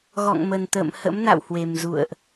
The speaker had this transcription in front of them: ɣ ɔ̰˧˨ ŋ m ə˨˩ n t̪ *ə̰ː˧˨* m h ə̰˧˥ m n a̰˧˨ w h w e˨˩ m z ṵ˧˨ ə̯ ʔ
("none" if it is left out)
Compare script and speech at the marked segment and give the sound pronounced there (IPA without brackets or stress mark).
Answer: ə̰ː˧˨